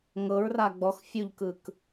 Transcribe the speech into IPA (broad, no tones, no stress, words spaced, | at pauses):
ŋɤɹ raɡ͡bɔx fʲuʎkɯk